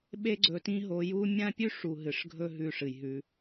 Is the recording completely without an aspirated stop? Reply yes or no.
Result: yes